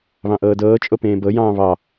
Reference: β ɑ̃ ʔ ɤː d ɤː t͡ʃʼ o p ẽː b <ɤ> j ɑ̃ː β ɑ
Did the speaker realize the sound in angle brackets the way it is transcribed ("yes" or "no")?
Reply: yes